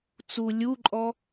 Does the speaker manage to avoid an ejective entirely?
no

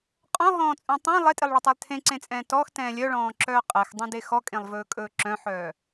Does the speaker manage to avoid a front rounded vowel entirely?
no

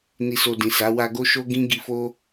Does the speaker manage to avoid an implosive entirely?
yes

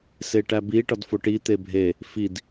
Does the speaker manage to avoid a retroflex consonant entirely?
no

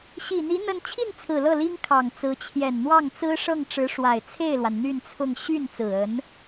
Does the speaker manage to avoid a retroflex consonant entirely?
no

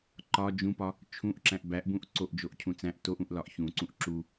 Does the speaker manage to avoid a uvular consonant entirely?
yes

